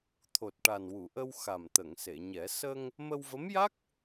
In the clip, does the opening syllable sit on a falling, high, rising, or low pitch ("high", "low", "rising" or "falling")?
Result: low